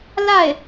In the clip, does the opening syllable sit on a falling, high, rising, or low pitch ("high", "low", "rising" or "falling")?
falling